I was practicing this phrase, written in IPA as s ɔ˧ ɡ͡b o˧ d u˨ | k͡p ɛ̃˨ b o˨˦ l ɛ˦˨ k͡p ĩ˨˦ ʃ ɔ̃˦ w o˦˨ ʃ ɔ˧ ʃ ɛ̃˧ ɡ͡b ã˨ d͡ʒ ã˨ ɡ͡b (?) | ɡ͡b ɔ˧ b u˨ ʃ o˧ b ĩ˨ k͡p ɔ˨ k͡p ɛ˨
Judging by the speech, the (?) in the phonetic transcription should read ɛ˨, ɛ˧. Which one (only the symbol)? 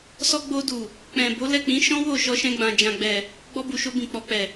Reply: ɛ˨